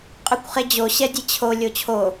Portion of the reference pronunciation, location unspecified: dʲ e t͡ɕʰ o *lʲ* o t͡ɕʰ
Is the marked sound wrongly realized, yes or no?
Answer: no